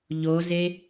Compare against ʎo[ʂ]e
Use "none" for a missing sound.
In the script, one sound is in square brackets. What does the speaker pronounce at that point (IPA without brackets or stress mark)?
z